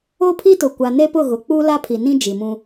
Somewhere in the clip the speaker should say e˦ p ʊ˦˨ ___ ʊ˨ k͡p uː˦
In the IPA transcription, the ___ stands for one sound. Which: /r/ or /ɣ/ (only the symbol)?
ɣ